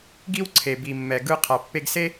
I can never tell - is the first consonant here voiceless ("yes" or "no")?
no